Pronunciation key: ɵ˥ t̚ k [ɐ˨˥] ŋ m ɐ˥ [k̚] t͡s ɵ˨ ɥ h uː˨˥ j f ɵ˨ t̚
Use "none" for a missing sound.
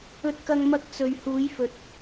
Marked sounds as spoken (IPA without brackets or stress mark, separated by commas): ɐ˥, k̚